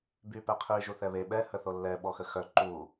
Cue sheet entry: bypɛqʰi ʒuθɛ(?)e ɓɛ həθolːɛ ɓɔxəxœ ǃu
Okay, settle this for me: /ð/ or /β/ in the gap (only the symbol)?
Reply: β